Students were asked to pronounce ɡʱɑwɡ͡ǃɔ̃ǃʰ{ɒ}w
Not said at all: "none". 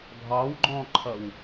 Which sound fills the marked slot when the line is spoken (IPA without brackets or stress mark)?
ʌ